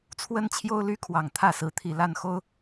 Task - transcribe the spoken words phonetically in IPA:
t͡sʰ w ə˦ n t͡ɕʰ j o˦ ʊ̯ l y˦ kʰ w ɑ˨˩ ŋ t̪ʰ ä˥˨ s ɹ̩˨˦ t̪ʰ i˨˩ l a˥˨ n x o˦ ʊ̯

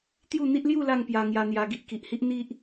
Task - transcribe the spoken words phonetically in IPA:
t̪ j u˥˧ n̪ i˦ ʔ l j u˥˧ l a˥˧ ŋ p j a˧ ŋ j a˧ n̪ j a˧ ɡ i˦ ʔ k i˨ ʔ h i˦ ʔ n̪ i˦ ʔ

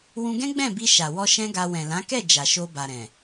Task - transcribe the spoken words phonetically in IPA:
w ũ˧ ɡ ɛ̃˦ ɡ͡b ɛ̃˦˨ b i˧ ʃ a˨ w ɔ˧ ʃ ɛ̃˦ ɡ a˧ w ɛ̃˨ l ã˨˦ k ɛ˦˨ d͡ʒ a˨ ʃ o˧ b a˨ ɾ ɛ̃˨

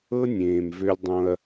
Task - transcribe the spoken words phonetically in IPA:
ɤ˦ nʲ ẽː˨ m v ø˦ lʲ dˤ õ˦ ɐ̯

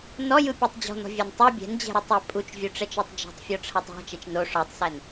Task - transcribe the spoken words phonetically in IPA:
n ɔ j ɯ pʲ o tˤ d͡ʑ ɔ̤ n ɔ̤ vʲ æ n tˤ o bʲ ɛ̤ n d͡ʑ ɛ̤ ɾ ɯ tˤ æ pʼ u t͡ʃ vʲ u ʈ͡ʂ ɛ t͡ʃ ɔ tˤ d͡ʒ ɔ̤ tˤ fʲ ɔ ʈ͡ʂʰ æ tˤ ɔ̤ t͡ʃ ɛ t͡ʃ n o ʂ ɔ tˤ s æ n

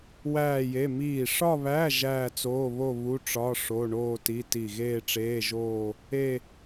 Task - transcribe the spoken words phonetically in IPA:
w æː˥˧ j e˧˥˧ m iː˧˩ ʂ ɒ˥˧ β æ˧˥˧ ʒ æː˥˧ t͡s oː˧˥˧ β o˥˧ β u˧˥˧ ʈ͡ʂ ɒ˧˥˧ ʂ o˧˥˧ ɳ oː˥˧ t i˧˥˧ t i˧˩ ɣ eː˥˧ ʈ͡ʂ eː˧˥˧ ʒ oː˥˧ | e˥˧

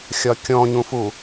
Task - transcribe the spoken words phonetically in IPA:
xʲ ɒ kʲ ɔ̃ ɲ ũ f u

